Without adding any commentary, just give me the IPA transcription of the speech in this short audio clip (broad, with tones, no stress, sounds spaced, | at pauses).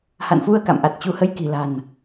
h a̰˧˨ n f u˧ ə̯ k a̰˧˨ m ʔ a˨˩ t̚ t͡ɕ u˨˦ h ə˧ j k i̤˨˩ l a̤˨˩ n